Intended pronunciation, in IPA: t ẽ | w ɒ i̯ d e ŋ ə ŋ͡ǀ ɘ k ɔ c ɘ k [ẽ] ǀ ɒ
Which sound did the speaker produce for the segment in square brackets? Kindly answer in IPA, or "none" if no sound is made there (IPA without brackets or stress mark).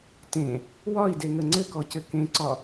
ẽ